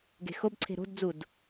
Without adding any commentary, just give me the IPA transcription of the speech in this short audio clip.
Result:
ɡe̤xobǀʰe̤ ɾo̤dd͡zud

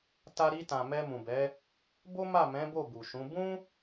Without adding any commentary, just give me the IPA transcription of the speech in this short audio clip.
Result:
ta˧ɾi˧tã˨ mɛ˧mũ˨bɛ˨˦ | bo˦ma˦˨mɛ̃˨˦ bo˦˨bu˨ʃũ˨˦ bũ˦

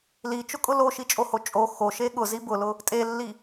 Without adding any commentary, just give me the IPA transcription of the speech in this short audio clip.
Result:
lit͡ʃʊkʼʊ loʃit͡ʃʼoho t͡ʃʼo xoʃe ɠʊzi bʊlʊ | tʼelːi

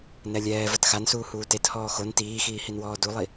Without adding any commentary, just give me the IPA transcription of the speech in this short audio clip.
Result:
nɛlʲɛː vɐtxansuː huːtet hɔːxon tiːxiːhinwɔː dulˠi

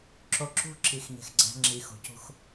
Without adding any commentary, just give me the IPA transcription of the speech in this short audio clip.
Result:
ǁo˨ǁṳ˦ ǁi˨xɲe̤˨x ɡ͡ǀæ̤˦ŋ͡ǁi˨xo̤˨ cṳ˦x

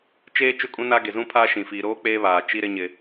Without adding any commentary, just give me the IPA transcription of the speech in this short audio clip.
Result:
t͡ʃeː˦ t͡ʃʊ˦˨kʼũ˦na˦ ɡe˨zũ˦pʰaː˦ ʃĩ˨ fiː˨ɾoː˦ k͡peː˦βaː˨ t͡ʃi˦ɾɪ˦ ɲɪ˦

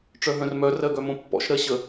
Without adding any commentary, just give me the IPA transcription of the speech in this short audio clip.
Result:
ʈ͡ʂœɦœ̃rmœ rɜɡœmõpːɔ̰ʃ ɾɜɕə

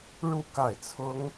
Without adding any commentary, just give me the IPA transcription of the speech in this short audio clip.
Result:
ɻu˥˧ ka˥˩ɪ̯ t͡sʰʊ˥ŋ

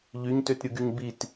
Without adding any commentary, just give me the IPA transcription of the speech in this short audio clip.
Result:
ʎyɲtøtɾʲɯɡyɲ bit

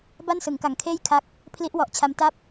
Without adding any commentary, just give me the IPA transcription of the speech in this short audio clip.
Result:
ba˥˩nsɯ˩˦ŋka˨˩ŋkʰeː˥˩j kʰa˦˥k̚ | pʰli˦˥ʔwɔ˨˩ʔt͡ɕʰa˧mta˥˩p̚

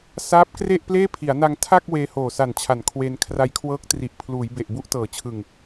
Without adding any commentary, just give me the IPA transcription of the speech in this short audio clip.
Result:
saː˦˥p̚ kre˥˩ʔpleː˥˩ pʰi˩˦a̯na˧ŋ tʰa˥˩k̚ weː˧hoː˨˩sa˨˩nt͡ɕʰa˩˦n kʰwe˧n kʰra˧jkʰwɤː˦˥k̚tri˨˩ʔpʰluː˩˦j be˨˩ʔbu˦˥ʔtɤː˩˦t͡ɕʰɯ˨˩ŋ

